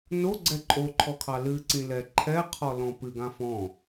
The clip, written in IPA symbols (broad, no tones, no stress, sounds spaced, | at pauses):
n o ɡ͡ǀ ɛ ǃʼ o ǃʰ ɔ kʰ ɑ l ɨ ǀ ĩ l ɛ ǃʰ ɛ qʰ ɔ l ɔ̃ p ɨ ɡ ã f ɔ̃